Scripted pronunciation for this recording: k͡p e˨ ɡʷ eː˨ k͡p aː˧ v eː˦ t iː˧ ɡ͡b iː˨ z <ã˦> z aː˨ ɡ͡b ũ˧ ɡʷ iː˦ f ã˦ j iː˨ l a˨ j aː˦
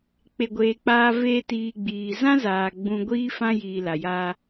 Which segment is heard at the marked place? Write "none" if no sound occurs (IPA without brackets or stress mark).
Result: ã˦